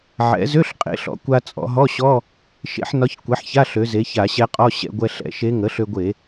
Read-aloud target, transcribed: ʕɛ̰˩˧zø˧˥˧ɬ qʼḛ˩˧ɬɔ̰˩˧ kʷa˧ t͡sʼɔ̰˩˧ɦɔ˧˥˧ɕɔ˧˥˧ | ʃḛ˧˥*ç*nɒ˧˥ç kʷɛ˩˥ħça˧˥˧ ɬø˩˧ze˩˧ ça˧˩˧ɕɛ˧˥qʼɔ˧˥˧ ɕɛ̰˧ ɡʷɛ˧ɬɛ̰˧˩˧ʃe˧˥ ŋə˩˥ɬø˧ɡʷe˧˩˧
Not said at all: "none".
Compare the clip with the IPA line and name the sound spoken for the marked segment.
ħ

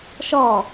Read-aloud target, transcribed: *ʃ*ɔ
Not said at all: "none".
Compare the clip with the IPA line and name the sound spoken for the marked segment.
ʃ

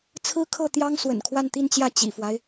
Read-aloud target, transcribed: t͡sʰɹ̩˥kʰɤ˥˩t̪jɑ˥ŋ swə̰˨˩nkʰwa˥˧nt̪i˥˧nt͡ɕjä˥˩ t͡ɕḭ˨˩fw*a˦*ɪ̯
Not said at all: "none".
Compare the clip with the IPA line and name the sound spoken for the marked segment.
a˦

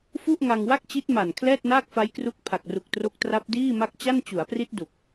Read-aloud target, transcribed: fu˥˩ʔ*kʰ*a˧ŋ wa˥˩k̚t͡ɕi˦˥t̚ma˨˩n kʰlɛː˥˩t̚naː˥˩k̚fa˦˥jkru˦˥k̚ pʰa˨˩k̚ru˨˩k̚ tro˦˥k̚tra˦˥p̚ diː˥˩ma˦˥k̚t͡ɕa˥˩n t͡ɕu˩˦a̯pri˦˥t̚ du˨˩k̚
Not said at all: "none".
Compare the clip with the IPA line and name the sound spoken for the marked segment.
ŋ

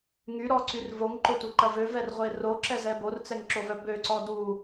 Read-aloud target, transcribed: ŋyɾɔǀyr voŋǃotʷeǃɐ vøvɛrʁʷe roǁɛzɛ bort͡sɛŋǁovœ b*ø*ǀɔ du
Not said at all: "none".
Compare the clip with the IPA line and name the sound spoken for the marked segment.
ø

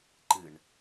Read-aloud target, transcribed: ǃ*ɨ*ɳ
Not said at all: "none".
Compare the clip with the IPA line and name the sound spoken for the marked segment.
ɨ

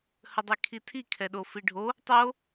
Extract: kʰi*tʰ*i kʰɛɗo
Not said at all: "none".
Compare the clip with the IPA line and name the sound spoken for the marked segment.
tʰ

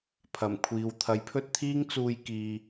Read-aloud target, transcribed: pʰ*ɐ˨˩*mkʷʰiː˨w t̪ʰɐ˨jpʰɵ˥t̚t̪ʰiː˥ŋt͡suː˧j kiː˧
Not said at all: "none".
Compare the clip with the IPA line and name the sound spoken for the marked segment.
ɐ˨˩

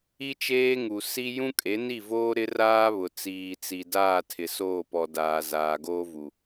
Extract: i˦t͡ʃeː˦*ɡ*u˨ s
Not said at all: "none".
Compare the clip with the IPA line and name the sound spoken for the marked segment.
ŋ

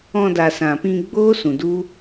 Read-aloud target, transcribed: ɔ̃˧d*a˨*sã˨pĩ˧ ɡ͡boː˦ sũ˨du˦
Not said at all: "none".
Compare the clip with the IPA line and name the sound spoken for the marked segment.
a˨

